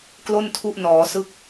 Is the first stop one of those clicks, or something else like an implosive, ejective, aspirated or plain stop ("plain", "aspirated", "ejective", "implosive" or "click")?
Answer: plain